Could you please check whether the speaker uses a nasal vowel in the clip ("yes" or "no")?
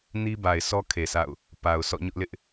no